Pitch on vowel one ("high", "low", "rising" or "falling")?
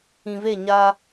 low